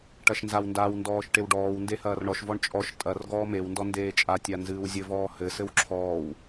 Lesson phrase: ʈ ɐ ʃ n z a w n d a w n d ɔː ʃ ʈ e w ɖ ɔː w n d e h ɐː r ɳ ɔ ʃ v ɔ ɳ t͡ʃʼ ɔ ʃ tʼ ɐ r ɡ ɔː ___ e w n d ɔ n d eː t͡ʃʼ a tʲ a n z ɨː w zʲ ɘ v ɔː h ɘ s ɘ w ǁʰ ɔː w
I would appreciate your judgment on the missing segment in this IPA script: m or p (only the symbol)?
m